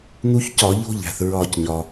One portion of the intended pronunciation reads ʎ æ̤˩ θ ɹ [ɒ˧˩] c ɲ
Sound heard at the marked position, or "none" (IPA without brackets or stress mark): ɒ˧˩